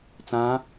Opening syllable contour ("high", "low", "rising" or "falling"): rising